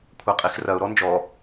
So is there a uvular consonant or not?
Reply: yes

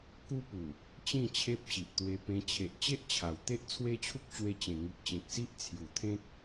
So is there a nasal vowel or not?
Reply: yes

